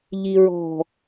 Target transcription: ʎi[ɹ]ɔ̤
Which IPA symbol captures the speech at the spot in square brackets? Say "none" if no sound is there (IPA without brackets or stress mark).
ɹ